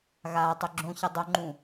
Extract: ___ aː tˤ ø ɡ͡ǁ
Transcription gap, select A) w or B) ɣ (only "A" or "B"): B